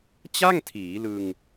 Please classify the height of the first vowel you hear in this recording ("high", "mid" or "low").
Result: low